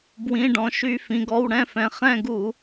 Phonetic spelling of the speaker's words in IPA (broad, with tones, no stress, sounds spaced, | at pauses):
b w ĩ˩˧˩ ɖ ɔ̃˩ ʃ y˧˩˧ f ĩ˩ ɡ ɔ˩˧˩ w ɽ ɛ̃˦˨ f ɛ̃˩ χ ɛ̃˦˨ ɡ u˧˩˧